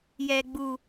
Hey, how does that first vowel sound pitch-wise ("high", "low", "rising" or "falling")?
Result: low